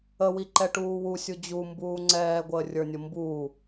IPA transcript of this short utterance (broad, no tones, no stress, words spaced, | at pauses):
əwiǃɛʈuː wusʲu d͡ʑumbuː ŋ͡ǀɛːɡʷəːrʲə˞nʲʊ mbu